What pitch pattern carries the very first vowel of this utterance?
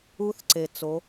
rising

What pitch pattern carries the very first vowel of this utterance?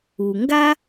low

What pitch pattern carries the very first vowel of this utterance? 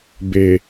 low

